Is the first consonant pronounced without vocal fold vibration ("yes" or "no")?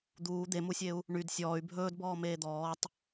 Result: no